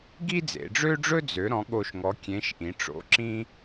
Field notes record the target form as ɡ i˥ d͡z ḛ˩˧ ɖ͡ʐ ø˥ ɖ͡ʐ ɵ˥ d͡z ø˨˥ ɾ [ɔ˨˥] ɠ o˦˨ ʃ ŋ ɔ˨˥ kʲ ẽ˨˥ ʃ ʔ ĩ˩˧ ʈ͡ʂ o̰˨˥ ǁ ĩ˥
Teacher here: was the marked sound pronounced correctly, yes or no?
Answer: no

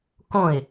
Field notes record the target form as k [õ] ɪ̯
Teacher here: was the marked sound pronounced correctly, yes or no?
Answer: yes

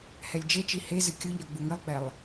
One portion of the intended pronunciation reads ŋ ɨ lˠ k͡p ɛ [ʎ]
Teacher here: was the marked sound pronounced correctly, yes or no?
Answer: no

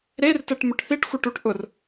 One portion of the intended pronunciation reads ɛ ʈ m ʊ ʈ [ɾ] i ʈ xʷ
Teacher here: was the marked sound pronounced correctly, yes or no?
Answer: no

